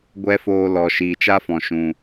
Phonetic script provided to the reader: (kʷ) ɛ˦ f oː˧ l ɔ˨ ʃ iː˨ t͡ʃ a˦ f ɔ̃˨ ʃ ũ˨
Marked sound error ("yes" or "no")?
yes